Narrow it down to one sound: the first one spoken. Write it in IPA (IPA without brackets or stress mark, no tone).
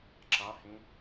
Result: ǁ